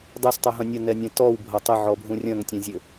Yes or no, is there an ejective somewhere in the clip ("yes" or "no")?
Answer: no